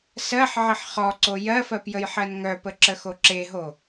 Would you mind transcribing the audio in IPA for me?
s ɜ ħ ʕ ɘ ħ χ ɔ ǀ o j ɜ f ɜ p j ə j ħ ɜ n ŋ œ p ə ǁ ə x o ǁ e ɦ o

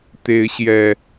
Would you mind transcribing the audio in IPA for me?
t̪ e˨˦ ɪ̯ ɕ j ɛ˨˩

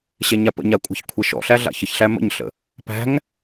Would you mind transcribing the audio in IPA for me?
ɕ ɛ ɲ a p ə̰ ɲ a kʷʼ a̤ ç kʷʰ ɛ ʃ ɔ̰ ɬ æ ɮ a̰ ç ə ç ɬ æ m ə̰ ɲ ɬ ə̰ | p æ̤ ŋ

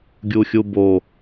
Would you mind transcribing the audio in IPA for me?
ɡʲ u xʲ u b o

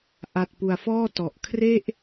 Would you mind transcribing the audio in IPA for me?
ʔ a˨˩ t̚ p u˨˩ a̯ f ɔː˥˩ t ɔ˨˩ ʔ kʰ r e˥˩ ʔ

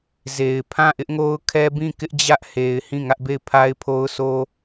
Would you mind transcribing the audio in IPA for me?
z e˨ ɪ̯ pʰ ã˦˨ ʔ ɪ˦ ʔ ŋ o˦ ʊ̯ kʰ ɛ˦ b ĩ˦˨ k ɪ˦ ʔ d͡ʑ ä˦ ʔ h e˨ ɪ̯ h ĩ˦˨ ŋ ä˦ ʔ b e˦˨ ɪ̯ pʰ a˦ ɪ̯ pʰ o˦ ʊ̯ sʰ o˦

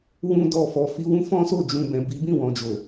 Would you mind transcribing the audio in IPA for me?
w ũ˦ d ɔ˦˨ f ɔ˨˦ f i˦ w ũ˦ f ɔ̃˦ s o˦˨ d͡ʒ ũ˨ b ɛ̃˨ b i˨˦ b ĩ˦˨ w ɔ̃˨ d͡ʒ o˨

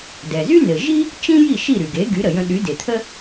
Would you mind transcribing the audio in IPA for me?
d ɛ˩ z y˥ n ɘ˩ ʒ i˥ | t͡ʃ ĩ˥ j i˥˩ ʃ i˥˩ ɾ y˩ ɡ e˩˥ ɡ y˩˥ ɾ ə˩ j ə̃˧ ɗ y˩˥ d e˩ t̪ʰ ə˥

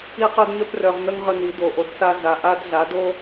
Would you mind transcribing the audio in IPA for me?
i˦ q œ˦ d ɲ œ˦ p r œ˧ ʁ n̪ ə˦ ŋ ʁ ə˧ n̪ i˨˦ d o˨ ʔ o˨ d s a˧ z a˨ ʔ a˦ d ɮ a˨˦ d o˦

